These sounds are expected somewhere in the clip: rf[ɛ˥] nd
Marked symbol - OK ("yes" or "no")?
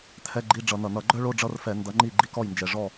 no